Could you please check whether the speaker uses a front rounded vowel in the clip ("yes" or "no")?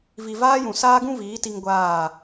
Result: no